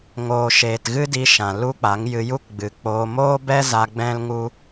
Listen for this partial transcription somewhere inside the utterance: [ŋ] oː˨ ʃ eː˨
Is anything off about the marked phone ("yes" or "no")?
no